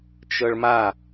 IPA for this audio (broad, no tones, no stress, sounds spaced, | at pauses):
t͡ʃ ɤ ɭ m a